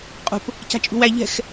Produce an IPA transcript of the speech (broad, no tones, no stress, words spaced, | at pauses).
qʼṳp | ca̤t͡ʃʼṳwæ ʎɛ̤x